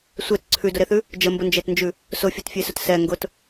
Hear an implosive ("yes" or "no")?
no